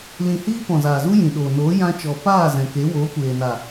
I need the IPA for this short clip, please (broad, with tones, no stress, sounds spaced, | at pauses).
l ĩ˨ h iː˧ p ɔ̃˨ z aː˨ z u˦ j ĩ˨ ɗ oː˨ n oː˨˦ j ã˧ t͡ʃ ɔ˨ p aː˦˨ z ɛ̃˨ k e˨˦ w oː˨˦ kʷ eː˨ n a˨